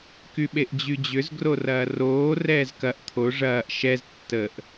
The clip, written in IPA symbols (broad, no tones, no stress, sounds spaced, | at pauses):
k y ɓ e ʔ d͡ʑ y d͡ʑ ʏ z ɡ r o r ɐː r oː r ɛː z k ɐ ʔ t̪ʰ o ʐ ɐː ʔ ʃ ɛ z tː ə ʔ